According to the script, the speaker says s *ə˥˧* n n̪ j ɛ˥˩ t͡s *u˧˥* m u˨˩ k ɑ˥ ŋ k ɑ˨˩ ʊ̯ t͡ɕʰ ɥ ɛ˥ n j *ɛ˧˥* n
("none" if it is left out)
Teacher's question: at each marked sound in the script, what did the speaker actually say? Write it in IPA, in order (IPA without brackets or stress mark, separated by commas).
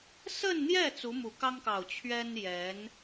ə˥˧, u˧˥, ɛ˧˥